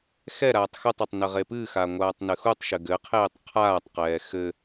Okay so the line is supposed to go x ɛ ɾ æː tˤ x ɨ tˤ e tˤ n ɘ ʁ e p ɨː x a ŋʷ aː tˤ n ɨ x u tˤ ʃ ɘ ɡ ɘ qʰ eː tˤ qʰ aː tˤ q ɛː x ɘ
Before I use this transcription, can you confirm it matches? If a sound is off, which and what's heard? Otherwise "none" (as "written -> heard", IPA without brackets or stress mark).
æː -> aː